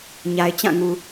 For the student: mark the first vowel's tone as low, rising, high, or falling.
low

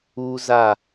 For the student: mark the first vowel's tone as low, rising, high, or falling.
high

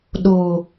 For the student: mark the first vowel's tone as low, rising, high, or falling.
low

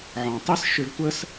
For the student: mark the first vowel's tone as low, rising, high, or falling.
low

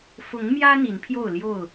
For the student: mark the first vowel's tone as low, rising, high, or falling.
rising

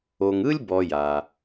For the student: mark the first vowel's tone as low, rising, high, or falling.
low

